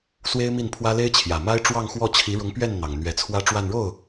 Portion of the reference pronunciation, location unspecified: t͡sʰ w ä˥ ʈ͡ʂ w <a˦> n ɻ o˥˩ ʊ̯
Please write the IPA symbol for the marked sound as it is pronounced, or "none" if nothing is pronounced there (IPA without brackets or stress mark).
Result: a˥˧